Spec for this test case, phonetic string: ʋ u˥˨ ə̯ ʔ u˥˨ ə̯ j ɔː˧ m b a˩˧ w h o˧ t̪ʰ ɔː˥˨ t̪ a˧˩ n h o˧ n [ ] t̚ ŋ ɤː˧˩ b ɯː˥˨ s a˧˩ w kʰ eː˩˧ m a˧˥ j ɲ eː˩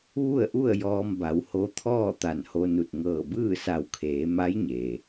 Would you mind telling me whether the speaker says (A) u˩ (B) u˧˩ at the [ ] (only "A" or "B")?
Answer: B